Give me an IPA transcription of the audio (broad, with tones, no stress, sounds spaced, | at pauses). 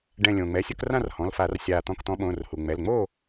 ɖ ɛ̃˧˩ lʲ õː˩ ŋ͡m ɛ˩˧˩ sʲ ʊ˥˨ k r ã˥˨ r h ɔ̃˩˧˩ l f a˧˩˧ r sʲ aː˧˩ t̪ ɔ̃˧˩ k t̪ ɔ̃˨˦ ɓ õː˩˧˩ r h u˩ ŋ͡m ɛ˩˧˩ l ŋ͡m oː˥˨